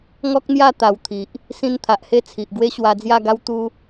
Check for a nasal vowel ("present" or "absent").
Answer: present